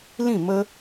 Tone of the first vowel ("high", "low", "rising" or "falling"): falling